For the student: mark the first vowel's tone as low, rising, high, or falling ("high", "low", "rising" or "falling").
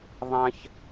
high